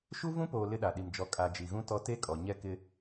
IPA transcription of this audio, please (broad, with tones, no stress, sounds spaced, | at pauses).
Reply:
ʃ u˦ v ũ˦ p oː˨ l ɪ˦ ɗ a˨ ɗ i˨ m d͡ʒ ɔ˨˦ kʼ a˨ d͡ʒ i˨ ɣ ũ˦ t ɔ˦ t e˦ kʼ ɔ˨ ɲ ɛ˦ k ɪ˦